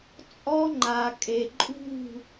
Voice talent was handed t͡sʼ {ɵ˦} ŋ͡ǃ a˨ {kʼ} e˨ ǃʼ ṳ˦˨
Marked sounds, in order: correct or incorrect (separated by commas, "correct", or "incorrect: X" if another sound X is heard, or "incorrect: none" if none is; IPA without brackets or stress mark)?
incorrect: ɔ˦, correct